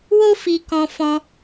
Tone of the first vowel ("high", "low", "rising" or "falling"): high